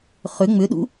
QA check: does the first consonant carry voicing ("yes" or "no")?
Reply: no